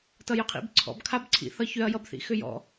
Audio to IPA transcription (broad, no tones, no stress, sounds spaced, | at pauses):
t ʌ j ʏ qʰ ḭ b ǀʰ ɔ̰ b kʰ a b ǀʰ ḭ θ ʌ ç ʏ ɐ̯ j ʌ b θ ḭ x ʏ j ɔ̰